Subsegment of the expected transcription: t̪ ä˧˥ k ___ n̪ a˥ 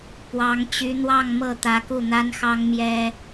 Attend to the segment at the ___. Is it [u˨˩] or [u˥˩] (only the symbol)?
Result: u˥˩